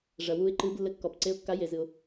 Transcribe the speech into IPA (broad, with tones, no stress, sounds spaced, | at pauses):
ʐ ɐ˩ w u˨˦ ɪ̯ ǃ ɨ˨˦ b lː ɘ˨˦ kː ɔ˩ p ǀ e˨˦ ʊ̯ kː a˨˦ j e˩ z ɨ˩ ʊ̯